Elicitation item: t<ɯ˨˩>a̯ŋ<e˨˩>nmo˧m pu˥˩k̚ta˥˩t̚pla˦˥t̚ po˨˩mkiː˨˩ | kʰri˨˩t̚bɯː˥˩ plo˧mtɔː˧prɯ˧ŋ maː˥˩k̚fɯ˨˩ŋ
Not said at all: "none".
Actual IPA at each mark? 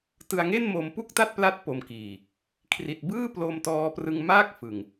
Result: ɯ˧, e˥˩

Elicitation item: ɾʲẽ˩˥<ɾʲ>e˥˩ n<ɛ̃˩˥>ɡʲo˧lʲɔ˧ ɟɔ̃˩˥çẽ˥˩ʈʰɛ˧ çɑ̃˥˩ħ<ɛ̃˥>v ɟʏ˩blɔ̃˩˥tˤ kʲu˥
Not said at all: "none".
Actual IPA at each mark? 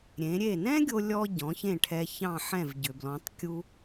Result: ɾʲ, ɛ̃˥, ɛ̃˥˩

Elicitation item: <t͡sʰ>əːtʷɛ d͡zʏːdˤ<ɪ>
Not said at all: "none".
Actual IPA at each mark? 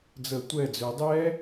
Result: d͡z, ɛ

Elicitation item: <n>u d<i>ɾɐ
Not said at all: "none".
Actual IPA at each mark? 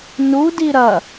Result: n, i

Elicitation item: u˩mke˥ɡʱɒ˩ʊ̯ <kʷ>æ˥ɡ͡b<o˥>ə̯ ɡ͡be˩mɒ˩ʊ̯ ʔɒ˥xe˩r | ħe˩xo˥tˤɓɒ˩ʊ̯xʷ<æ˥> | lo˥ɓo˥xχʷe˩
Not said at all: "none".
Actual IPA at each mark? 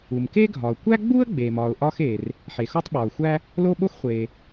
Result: kʷ, u˥, æ˥

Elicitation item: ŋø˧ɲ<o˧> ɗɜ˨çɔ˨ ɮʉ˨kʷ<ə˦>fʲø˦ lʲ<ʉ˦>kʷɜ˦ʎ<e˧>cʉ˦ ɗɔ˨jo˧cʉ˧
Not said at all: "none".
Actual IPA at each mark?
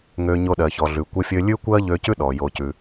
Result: o˧, ə˦, ʉ˦, ø˧

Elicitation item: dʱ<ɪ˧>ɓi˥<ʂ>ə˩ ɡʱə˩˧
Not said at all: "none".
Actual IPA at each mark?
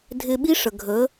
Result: ɪ˧, ʂ

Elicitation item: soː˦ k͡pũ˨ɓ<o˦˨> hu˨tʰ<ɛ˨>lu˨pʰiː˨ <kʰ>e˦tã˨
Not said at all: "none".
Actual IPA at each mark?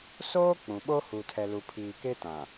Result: o˦, ɛ˨, k

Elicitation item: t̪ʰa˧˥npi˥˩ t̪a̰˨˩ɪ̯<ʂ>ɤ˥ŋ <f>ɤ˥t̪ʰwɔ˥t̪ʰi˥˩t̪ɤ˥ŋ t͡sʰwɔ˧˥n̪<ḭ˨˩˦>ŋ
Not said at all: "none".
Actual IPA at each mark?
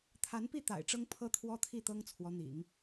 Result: ʈ͡ʂ, pʰ, ḭ˨˩˦

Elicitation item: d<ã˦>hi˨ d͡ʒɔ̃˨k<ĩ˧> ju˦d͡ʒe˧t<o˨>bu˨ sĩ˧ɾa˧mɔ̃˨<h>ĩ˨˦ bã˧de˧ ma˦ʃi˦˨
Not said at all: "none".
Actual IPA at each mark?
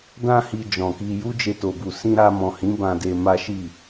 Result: ã˧, i˧, o˨, h

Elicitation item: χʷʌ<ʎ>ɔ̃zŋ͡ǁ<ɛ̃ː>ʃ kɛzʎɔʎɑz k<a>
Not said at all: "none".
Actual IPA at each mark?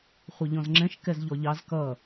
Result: ʎ, ɛ̃, ʌ

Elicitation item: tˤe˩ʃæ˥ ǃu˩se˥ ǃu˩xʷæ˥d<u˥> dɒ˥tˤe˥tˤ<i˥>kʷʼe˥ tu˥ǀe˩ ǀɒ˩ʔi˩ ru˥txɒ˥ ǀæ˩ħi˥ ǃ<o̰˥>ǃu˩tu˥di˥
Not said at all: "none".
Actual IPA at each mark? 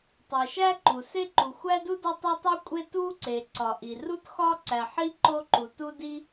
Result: u˥, i˥, o˥

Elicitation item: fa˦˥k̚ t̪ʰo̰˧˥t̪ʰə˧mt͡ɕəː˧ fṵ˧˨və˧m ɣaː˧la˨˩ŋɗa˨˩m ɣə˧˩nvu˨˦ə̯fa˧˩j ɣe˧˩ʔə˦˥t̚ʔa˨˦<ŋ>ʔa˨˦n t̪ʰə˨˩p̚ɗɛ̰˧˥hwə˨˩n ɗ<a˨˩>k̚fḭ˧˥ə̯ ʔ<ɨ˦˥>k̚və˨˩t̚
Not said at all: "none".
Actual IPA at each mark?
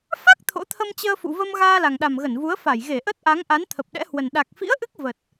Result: ŋ, a˨˩, ɨ˦˥

